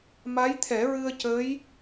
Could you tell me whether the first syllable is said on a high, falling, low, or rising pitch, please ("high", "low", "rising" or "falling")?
rising